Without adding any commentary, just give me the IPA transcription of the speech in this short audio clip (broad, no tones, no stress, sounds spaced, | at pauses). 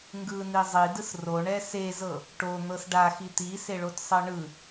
ŋ ɡ ɯ n i zˤ i d ɯ s r o ɳ ɛ s e z ɤ | ʈ o n̪ ɤ s ɖ a x i t̪ i s e ɭ o t sˤ ɤ ɳ ɯ